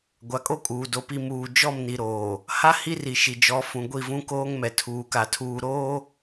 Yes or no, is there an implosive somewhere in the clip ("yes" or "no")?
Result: no